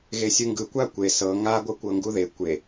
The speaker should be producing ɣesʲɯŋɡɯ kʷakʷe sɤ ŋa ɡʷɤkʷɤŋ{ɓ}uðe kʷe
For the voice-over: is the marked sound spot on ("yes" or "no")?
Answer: no